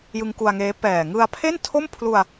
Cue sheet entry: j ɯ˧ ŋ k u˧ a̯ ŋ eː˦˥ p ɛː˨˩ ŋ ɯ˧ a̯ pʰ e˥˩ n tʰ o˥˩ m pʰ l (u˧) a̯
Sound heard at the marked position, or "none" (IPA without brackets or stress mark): u˧